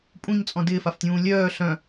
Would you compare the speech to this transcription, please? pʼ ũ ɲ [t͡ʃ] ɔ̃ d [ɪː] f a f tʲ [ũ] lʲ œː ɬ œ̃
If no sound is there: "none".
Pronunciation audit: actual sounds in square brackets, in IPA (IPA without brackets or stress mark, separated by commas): t͡sʼ, ɪː, ũː